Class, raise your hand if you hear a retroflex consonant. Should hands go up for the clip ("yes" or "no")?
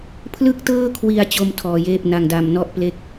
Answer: no